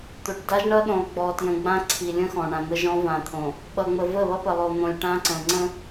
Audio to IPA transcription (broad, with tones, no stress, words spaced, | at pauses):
t̪o˨ʈ da˦ʒɳʌ˦ɗõ˨lˠ ɡ͡bɔ˨tjə̃˨ɡ͡bã˦ ǀʰi˨ lʲə̃˦ xɔ̃˨ɳã˨ n̪ə˦ʒɔ̃˦vã˨t̪ʰõ˨ | ɓʌ˨ŋ͡mə˨ və˦˨βʌ˦pə˨ lˠo˨n̪õ˨lʲ ʈã˦ǀə̃˨ ŋ͡ǀə̃˦